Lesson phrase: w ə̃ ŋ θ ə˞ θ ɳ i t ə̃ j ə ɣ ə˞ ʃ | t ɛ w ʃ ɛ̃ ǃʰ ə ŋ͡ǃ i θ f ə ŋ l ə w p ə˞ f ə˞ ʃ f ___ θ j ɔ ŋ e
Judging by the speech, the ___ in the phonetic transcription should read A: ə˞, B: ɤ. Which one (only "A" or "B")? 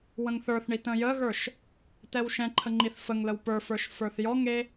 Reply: A